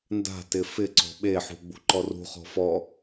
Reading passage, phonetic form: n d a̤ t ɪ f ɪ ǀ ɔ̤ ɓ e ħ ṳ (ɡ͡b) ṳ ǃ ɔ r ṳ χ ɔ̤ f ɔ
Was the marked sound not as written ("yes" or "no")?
no